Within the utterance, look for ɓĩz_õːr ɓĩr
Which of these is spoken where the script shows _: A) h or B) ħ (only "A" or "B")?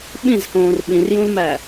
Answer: A